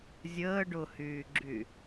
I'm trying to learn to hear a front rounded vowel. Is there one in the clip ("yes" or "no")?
yes